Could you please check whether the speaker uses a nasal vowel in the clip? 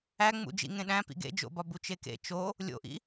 yes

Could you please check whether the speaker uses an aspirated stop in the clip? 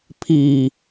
yes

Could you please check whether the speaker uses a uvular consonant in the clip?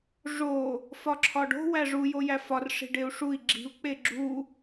no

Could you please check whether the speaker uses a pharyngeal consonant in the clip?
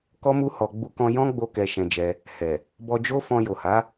no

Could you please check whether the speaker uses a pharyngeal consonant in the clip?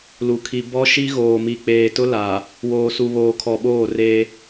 no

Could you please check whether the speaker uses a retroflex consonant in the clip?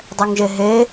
no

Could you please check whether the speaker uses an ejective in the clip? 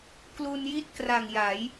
no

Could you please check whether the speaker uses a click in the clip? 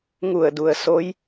no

